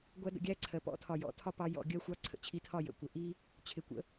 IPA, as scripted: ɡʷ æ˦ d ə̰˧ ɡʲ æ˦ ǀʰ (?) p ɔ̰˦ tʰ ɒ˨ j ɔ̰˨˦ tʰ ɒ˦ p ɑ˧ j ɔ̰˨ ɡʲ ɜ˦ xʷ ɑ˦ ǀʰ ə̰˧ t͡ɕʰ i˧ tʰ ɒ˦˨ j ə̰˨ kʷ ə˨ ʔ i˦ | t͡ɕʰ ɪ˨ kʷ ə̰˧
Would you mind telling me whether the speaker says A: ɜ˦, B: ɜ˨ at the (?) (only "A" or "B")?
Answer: B